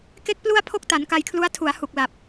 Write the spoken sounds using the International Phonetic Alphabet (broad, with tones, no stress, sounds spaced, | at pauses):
k e˥˩ k̚ p l u˥˩ a̯ pʰ o˥˩ k̚ t a˩˦ n k a˧ j kʰ l u˦˥ a̯ tʰ u˩˦ a̯ h u˨˩ k̚ l a˨˩ p̚